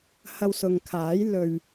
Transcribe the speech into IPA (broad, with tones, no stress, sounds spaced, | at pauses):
h ɐ˧ w s ʊ˨ ŋ kʰ aː˨˥ j l ɵ˨ ɥ